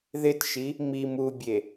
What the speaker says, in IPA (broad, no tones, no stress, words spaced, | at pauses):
ðɪtʃi | mim ubʲe